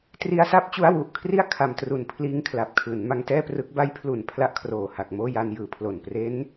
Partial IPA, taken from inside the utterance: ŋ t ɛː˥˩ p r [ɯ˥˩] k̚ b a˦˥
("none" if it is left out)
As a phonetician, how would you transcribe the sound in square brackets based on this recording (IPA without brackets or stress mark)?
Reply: ɯ˦˥